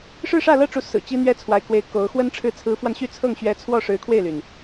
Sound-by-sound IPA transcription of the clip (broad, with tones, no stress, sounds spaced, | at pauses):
ʂ ɻ̩˥˧ ʂ ä˥˧ l ɤ˥˩ ʈ͡ʂ u˧˥ s ɹ̩˨˩ t͡ɕ i˥ n̪ ɥ ɛ˥ t͡sʰ w a˧˥ ɪ̯ k w e˧˥ ɪ̯ k o˧˥ ʊ̯ x w ə˥ n ʈ͡ʂʰ ɻ̩˥˩ t͡sʰ ɹ̩˧˥ f w a˧ n ɕ y˥˧ t͡sʰ ɤ˥˩ ŋ ɕ ɥ ɛ˧˥ t͡sʰ w ɔ˥˩ ʂ ɻ̩˧˥ kʰ w e˥˩ ɪ̯ l y˩ n